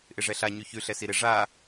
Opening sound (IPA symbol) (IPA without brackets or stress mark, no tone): ʔ